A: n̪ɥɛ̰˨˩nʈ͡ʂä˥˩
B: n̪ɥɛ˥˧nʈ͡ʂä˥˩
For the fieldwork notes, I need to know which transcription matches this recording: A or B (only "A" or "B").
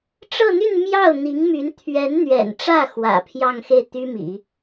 A